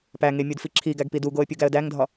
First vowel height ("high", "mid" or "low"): low